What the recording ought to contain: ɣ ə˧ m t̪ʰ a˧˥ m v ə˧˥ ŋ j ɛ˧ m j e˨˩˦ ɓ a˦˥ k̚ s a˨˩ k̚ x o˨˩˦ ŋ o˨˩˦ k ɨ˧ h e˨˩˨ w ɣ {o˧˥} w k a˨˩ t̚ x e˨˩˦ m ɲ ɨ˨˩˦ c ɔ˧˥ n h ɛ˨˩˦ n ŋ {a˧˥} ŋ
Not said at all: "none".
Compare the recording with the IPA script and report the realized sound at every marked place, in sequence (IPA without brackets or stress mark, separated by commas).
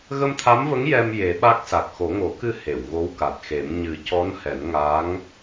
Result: o˧˥, a˧˥